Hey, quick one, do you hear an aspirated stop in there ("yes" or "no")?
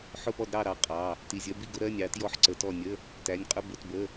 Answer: no